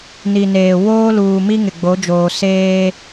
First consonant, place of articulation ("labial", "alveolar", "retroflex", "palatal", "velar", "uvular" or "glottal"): alveolar